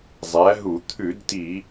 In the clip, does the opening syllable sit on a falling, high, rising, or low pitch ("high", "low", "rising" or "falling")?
rising